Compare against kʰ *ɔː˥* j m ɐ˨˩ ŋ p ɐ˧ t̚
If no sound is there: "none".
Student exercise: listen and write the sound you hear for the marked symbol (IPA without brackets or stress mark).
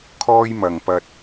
ɔː˥